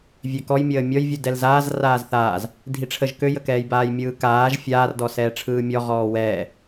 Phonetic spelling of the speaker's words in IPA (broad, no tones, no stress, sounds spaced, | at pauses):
vʲ ø k ɔ j mʲ əː mʲ ɔ j vʲ u d ɛ l z aː z r aː z θ aː z | dʱ i ʈ͡ʂʰ ə ʒ k ø j ə k ɛː j b aː j mʲ ɯː k aː ʒ fʲ aː r d ɔ s ɛː ʈ͡ʂʰ ɯː mʲ ɔ ʁ ɔː w ɛː